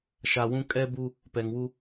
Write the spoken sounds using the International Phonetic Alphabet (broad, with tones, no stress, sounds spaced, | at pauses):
ʃ a˨ w ũ˦ kʼ ɛ˦ b u˦ | p ɛ˨ ŋ w u˦